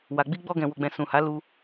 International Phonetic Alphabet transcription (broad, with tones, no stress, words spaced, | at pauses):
wa˨ɡ͡bi˧ɡ͡bɔ˧ɡɛ̃˨ wo˨ɡ͡bɛ̃˨ sũ˨ha˨˦ lu˧